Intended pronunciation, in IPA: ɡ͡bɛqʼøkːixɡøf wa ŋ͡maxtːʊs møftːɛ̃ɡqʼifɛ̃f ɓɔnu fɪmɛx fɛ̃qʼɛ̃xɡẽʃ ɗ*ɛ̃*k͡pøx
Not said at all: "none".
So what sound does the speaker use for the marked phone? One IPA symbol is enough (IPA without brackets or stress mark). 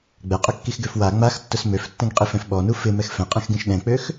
ɛ̃